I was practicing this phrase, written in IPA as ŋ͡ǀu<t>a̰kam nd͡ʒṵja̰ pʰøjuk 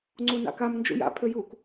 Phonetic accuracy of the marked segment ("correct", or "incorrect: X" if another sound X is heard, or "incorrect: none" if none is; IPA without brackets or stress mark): incorrect: n